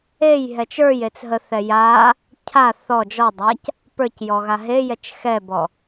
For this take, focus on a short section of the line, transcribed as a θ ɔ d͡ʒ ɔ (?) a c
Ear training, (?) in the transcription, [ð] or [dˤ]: dˤ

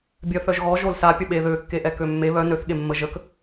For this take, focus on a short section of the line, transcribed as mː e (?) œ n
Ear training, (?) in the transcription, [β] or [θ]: β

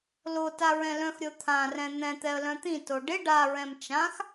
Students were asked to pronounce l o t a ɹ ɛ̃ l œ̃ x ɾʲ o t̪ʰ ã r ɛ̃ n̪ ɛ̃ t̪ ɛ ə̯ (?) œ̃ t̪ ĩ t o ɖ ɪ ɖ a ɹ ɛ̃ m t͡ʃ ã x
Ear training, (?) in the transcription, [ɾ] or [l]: l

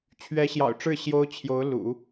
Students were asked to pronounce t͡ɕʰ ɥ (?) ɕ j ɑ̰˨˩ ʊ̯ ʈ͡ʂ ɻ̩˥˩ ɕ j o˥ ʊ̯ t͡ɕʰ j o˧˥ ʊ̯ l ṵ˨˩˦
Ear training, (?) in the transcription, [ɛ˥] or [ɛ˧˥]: ɛ˧˥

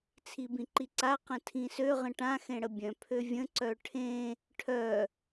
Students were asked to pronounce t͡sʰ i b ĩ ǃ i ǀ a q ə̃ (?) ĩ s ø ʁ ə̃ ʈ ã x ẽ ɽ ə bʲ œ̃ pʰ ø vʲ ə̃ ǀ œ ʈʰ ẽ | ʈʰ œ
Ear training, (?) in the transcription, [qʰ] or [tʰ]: tʰ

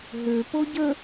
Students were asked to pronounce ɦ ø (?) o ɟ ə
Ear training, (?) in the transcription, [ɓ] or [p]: p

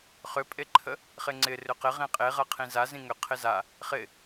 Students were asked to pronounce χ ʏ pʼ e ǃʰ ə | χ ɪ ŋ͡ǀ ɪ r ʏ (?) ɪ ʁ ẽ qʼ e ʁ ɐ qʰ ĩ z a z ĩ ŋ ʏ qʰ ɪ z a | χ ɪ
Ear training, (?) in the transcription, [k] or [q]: q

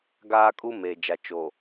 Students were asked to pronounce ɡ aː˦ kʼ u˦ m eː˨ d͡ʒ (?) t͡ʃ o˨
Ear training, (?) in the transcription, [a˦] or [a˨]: a˨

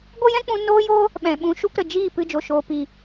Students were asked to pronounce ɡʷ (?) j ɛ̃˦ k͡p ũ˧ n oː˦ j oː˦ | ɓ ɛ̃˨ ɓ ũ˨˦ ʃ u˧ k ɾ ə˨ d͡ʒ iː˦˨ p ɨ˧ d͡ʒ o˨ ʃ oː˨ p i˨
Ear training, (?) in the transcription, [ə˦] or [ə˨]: ə˦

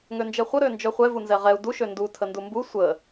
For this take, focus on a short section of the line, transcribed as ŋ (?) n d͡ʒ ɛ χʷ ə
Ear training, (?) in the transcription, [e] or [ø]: ø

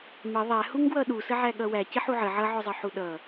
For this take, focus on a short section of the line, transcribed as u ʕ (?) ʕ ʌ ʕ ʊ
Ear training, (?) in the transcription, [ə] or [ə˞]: ə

